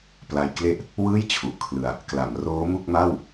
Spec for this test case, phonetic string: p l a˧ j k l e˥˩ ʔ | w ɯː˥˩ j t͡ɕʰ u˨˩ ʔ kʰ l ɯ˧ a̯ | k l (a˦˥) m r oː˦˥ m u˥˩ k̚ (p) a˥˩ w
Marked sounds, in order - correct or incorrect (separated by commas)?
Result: incorrect, incorrect